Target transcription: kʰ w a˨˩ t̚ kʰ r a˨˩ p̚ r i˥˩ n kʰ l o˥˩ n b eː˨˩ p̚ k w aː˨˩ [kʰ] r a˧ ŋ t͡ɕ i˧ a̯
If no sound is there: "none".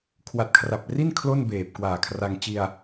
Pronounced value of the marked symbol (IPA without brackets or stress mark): kʰ